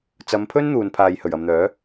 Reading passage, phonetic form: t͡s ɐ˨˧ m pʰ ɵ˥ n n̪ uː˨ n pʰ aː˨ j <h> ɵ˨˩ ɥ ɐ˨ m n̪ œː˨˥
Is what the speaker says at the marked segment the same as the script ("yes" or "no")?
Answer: yes